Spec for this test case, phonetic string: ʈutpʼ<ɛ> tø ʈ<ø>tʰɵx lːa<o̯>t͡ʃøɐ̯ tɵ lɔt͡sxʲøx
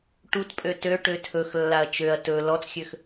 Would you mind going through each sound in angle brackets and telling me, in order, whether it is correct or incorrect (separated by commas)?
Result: incorrect, correct, incorrect